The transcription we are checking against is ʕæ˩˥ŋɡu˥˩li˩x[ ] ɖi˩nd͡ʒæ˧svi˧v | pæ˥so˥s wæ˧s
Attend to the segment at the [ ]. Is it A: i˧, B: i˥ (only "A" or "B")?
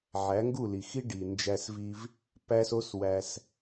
B